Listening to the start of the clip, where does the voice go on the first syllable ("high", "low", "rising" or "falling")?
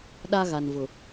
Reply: high